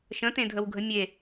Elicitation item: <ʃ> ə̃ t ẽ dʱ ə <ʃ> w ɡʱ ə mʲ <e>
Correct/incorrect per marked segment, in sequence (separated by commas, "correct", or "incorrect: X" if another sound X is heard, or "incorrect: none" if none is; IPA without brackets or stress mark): correct, incorrect: none, correct